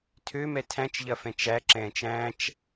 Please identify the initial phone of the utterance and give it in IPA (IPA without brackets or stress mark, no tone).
tʰ